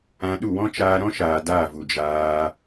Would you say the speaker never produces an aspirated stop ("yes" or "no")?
yes